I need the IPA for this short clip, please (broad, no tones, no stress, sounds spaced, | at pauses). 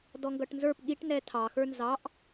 d ɔ ŋ ɡ ʌ ʈ n z ə˞ p ɠ i ʈ n ɛ tʰ ɑ x ə˞ n z ɑ ʔ